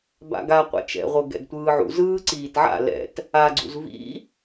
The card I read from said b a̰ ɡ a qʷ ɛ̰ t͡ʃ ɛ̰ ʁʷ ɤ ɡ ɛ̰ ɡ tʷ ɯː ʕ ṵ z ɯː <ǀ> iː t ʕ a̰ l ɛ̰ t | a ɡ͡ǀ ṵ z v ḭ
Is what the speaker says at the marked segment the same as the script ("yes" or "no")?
yes